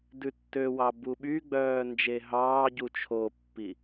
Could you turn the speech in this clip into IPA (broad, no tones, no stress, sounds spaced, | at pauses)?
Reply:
d ʉ tː ø w ɑ b u ɓ y ɡ͡b œː n d͡ʒ e ɦ ɑː ɟ u t͡ʃʰ o pː i